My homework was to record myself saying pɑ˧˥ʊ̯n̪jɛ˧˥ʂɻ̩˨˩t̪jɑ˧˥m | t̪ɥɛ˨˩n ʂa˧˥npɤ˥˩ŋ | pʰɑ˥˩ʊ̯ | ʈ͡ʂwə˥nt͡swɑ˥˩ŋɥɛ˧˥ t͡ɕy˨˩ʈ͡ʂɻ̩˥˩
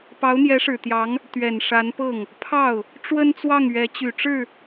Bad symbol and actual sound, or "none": m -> ŋ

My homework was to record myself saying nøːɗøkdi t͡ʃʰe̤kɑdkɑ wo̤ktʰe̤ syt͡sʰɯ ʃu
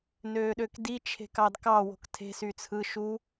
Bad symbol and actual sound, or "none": none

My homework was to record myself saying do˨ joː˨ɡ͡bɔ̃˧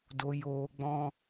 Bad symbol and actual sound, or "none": none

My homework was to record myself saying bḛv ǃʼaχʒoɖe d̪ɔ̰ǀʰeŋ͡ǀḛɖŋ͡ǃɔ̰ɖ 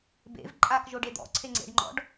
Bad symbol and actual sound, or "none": χ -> k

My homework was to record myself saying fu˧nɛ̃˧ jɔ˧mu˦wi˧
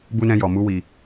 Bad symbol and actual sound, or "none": f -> b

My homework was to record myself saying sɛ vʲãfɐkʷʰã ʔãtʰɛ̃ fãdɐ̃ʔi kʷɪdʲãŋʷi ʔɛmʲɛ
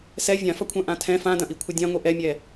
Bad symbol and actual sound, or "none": kʷ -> kʷʰ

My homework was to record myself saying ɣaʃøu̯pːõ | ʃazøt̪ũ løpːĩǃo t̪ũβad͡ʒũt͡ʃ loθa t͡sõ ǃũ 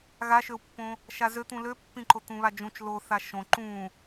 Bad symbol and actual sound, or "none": t͡s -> ʃ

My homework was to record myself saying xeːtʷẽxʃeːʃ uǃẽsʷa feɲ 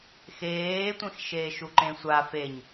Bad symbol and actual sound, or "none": none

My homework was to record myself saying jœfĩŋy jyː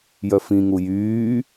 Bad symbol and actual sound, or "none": y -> u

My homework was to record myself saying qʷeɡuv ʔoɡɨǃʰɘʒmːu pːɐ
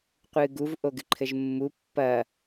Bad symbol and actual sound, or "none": e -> ɨ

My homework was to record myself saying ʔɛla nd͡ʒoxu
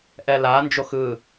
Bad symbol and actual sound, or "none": u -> ɯ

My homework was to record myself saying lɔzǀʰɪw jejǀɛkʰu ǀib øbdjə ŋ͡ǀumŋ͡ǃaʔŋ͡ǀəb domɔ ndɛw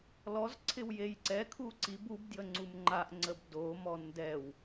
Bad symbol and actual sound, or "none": ø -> u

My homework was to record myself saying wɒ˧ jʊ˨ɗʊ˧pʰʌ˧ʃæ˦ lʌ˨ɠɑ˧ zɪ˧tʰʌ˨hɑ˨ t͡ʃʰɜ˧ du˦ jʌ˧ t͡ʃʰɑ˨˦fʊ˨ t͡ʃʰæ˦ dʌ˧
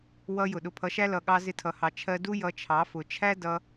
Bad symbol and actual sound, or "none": ɒ˧ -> ʌ˧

